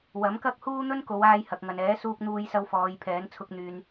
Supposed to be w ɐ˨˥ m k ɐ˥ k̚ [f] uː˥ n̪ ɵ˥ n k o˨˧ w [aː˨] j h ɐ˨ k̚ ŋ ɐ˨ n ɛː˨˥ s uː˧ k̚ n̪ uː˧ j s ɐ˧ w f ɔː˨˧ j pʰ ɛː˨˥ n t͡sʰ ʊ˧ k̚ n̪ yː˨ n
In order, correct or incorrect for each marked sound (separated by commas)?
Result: incorrect, incorrect